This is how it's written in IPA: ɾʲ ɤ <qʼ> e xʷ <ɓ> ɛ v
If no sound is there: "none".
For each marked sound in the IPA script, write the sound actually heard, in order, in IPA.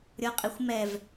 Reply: qʼ, m

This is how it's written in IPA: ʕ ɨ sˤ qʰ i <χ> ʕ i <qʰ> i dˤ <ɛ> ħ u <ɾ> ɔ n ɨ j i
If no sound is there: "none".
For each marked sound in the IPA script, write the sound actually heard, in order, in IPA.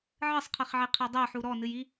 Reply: χ, qʰ, ɛ, ɾ

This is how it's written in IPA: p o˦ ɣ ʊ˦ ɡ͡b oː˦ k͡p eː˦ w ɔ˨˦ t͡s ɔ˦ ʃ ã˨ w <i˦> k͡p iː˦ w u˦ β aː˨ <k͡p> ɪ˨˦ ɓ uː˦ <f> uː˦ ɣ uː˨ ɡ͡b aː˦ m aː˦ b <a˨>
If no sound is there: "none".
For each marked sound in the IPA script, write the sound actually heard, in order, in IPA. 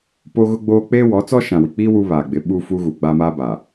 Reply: i˨, ɡ͡b, f, aː˨

